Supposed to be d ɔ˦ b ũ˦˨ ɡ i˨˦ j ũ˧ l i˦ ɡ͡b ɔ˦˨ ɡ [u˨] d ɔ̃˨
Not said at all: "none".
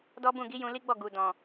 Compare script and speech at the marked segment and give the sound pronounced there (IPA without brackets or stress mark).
u˨